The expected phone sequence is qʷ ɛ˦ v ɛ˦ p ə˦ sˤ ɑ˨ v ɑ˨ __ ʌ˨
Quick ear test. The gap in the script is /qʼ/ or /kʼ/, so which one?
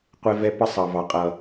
qʼ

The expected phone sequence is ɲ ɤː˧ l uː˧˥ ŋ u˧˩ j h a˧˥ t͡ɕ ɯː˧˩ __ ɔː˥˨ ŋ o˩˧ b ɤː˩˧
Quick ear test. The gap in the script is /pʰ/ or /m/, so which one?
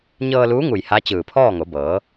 pʰ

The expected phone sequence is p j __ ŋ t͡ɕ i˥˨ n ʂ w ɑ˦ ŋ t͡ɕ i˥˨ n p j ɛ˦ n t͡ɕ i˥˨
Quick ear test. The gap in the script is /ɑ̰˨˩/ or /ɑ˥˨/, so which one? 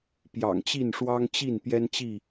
ɑ̰˨˩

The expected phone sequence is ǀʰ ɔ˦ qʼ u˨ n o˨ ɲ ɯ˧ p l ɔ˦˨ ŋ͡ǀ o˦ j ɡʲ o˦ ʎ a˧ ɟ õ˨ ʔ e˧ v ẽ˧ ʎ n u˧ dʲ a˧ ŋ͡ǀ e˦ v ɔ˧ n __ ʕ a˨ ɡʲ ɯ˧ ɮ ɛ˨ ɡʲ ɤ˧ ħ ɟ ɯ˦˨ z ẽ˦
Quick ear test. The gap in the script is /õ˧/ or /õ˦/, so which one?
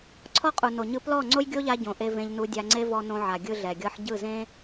õ˧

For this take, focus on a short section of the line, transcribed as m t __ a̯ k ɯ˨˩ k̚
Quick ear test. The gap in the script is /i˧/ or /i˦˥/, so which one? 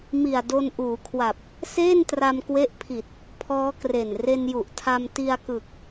i˧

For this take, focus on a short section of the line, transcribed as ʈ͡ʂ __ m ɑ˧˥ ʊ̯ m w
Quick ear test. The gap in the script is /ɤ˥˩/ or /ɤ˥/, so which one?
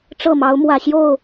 ɤ˥˩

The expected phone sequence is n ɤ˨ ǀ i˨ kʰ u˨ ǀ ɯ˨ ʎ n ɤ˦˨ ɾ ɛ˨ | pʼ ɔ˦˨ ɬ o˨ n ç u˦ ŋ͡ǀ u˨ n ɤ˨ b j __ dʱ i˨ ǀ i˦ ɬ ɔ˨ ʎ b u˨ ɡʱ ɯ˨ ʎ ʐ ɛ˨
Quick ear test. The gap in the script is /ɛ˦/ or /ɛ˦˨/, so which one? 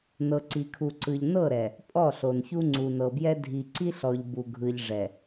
ɛ˦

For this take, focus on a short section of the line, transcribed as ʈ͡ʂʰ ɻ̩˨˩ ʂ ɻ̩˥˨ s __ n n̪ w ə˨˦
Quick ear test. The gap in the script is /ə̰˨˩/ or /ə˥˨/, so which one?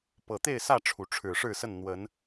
ə˥˨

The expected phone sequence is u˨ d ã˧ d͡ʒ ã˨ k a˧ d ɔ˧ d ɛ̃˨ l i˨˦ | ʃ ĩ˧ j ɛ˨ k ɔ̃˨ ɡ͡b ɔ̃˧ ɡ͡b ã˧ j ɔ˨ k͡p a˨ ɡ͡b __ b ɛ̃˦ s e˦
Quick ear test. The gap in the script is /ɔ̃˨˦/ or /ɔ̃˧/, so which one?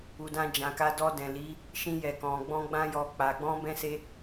ɔ̃˧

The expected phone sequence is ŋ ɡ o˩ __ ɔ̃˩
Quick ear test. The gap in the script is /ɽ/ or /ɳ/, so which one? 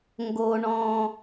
ɳ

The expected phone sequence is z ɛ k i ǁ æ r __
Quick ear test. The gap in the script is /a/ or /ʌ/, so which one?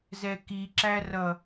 ʌ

